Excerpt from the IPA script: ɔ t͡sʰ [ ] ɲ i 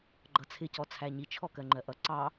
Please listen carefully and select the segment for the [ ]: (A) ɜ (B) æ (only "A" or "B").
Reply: B